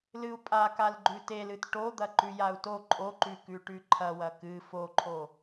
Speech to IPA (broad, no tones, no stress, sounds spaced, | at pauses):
l ɨ u̯ pʼ a k a l ɡ͡ǃ ʉ t e l ɨ t ʈ o d̪ ɐ ǃ ʉ j a u̯ t o ǃʼ o ǃ ʉ k ʉ ʈ ʉ ǃʰ ɐ w ɐ k ɨ f o ǃʰ o